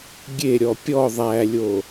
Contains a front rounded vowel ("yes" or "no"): no